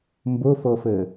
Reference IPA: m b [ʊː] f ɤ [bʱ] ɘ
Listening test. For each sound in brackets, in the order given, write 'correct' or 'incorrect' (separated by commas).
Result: incorrect, incorrect